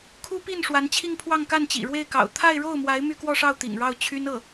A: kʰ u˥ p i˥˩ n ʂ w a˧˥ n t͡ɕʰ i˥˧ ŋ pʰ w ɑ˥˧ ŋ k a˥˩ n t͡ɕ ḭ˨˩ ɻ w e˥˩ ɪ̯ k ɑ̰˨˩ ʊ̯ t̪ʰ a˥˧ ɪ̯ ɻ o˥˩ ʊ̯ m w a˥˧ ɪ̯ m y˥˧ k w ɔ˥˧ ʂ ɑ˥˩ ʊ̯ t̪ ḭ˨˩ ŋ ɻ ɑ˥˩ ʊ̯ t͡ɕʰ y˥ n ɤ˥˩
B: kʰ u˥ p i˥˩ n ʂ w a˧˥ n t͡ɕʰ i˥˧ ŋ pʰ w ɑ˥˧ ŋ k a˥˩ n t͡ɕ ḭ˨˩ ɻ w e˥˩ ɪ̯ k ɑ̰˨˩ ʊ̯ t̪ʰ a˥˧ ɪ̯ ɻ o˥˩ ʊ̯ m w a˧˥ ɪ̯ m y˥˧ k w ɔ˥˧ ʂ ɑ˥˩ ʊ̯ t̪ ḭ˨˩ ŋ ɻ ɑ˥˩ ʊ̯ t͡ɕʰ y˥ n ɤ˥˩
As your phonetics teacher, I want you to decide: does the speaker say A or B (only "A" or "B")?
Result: B